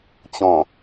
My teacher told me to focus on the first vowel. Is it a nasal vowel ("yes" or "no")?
yes